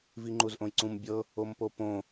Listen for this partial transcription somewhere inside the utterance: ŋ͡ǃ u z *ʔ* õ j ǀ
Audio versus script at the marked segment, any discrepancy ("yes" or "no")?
no